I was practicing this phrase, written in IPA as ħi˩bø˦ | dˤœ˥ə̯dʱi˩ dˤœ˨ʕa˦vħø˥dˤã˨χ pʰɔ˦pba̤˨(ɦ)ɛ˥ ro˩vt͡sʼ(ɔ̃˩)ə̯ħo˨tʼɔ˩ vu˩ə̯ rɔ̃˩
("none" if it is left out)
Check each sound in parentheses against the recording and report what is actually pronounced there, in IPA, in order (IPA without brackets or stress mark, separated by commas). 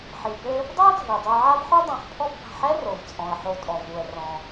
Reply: ħ, ɔ̃˩